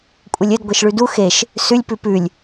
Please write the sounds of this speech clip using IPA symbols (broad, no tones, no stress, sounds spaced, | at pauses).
kʷʼ ɪ lʲ ɘ d ɡʷ e ʃ ɭ ʉ d u x e ʃ | s ʉ lʲ p ʉ p ʉ lʲ